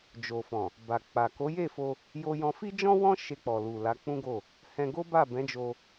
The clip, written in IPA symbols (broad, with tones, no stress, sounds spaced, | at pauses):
d͡ʒ o˨ f ɔ̃˨ | b a˨ k͡p a˨ k o˨˦ j e˦˨ f o˧ | j o˧ j ɔ̃˧ f i˦ d͡ʒ ɔ̃˦ w ɔ̃˦ ʃ e˧ k͡p ɔ˨ l u˨ l a˨˦ k͡p ũ˦ ɡ o˦˨ | h ɛ̃˧ ɡ o˦ b a˦˨ b ɛ̃˨˦ d͡ʒ o˧